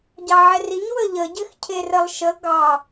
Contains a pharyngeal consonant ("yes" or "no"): yes